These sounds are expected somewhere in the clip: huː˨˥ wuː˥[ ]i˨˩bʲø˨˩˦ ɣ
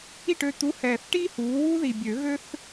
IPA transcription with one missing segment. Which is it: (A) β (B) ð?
B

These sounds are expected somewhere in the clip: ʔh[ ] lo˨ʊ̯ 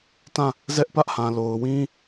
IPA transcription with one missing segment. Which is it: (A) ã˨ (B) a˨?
A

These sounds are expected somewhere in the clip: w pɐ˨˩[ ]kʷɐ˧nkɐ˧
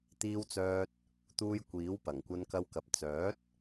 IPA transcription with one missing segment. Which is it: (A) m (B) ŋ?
B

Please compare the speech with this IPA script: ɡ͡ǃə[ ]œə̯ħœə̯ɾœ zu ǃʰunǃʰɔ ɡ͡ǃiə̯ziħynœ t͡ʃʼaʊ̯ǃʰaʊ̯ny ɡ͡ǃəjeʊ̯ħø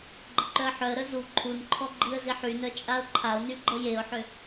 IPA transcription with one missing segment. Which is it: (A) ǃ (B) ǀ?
A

